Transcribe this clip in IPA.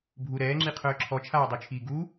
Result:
bʱu ɾɛːŋ͡ǁiqʰœː ǁʰɔt͡ʃʰaːdˤøt͡ʃʰiː ɡu

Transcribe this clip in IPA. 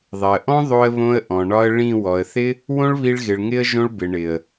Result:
ðˤɪ˨ə̯ʔɔ̃˦ ðˤo˧ə̯βõ˧ə̯ ʔɔ̃˨ɳɒ˧ə̯ ɭĩ˦˨ wɔ˨ə̯θɪ˦ | wõ˦ɭβi˧ɭɣɪ˨ɭ ŋɪ˦ə̯ ʒõ˧ɭbɪ˨ ɳɪ˨ə̯

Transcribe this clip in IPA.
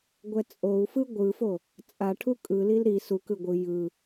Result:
ɡʷɛt͡sʼou̯fɯ ɡʷɯfo | t͡sʼaʈʰu kʼɯlil ɾi su kɯɡʷɯ jɯ

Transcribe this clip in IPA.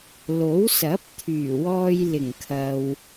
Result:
lo˨˥wsɐ˨˥p̚t̪ʰyː˨˩wɔː˧j lɪ˨˩ŋkʰɐ˨w

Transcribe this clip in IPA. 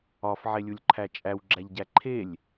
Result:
ɒf ʕelʲulʲǃʰæt͡ʃʼæw ɡ͡ǁæʎɟæǃʰelʲ

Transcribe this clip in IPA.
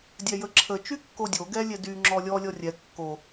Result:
dʲɛjəǁʰə t͡ʃykːodʲo ɡɛlʲɛdy ŋ͡ǁɔlʲɔ lʲɔrʲɛ kːo

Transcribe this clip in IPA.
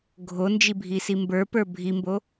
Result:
ɡʱo nd͡ʒibʱisimbə˞ pə˞bʱimbo

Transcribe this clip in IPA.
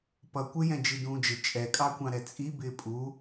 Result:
pʌ kʷɪjɛ̃ d͡ʒidũːd͡ʒɪ t͡ʃʼɛkʼɑkʷɑ̃ ɾɛt͡sʼi bɪːpʼu

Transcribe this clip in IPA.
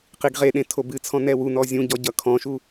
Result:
qiɡʁeɗẽ tʰobɨt͡sʰɔ̃ nɛwu nɔzʲũ ɟɔɟʌkʰɔ̃ʃu

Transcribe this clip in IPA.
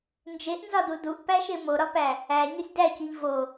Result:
nd͡ʒeʔnzɒdu duʔpæʃe moɾɒpæ | æ ɲosʲdæciʎ vo

